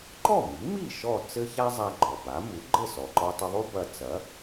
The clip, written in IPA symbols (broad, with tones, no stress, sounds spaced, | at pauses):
ǃ ɔ˥˩ m i˩˥ m i˥˩ ʃ ɔ˥˩ t͡s ɘ˥ ç a˥ zˤ a˧ ɡ͡ǃ ɔ˩ b a˩˥ m u˩˥ ɡ͡ǃ ɘ˥˩ s ɔ˩ ǃ ɔ˧ tˤ i˧ ðˤ u˥ b ɐ˧ t͡s ɐ˩˥